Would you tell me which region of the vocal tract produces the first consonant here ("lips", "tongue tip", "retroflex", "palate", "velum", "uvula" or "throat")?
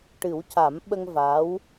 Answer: retroflex